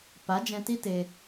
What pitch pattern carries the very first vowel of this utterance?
rising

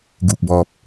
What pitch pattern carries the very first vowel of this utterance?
low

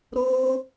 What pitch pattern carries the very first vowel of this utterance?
high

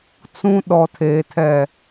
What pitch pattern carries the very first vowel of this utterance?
high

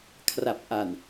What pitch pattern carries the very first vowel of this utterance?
low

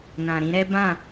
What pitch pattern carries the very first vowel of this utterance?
low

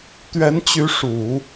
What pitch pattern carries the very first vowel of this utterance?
rising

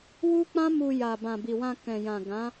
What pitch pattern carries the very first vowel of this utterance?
high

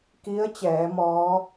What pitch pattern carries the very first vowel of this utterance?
rising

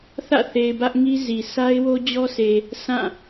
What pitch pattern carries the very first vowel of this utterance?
falling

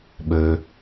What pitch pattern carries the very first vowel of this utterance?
low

